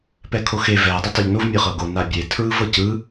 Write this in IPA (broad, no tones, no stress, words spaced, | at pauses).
pɛkʰoxe vɛ dˤatˤɛʎnov mʲɤχɤɡo nabʲe tʰɹɯvɤcɯ